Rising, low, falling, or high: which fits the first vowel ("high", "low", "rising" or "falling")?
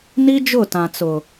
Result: high